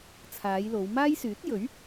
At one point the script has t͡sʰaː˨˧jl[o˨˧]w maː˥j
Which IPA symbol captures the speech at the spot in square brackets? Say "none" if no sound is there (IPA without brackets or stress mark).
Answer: o˨˧